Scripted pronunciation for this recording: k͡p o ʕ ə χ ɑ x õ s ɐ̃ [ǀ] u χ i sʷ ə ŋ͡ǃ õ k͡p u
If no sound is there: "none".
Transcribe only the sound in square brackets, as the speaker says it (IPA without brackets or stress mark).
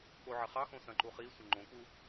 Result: ǃ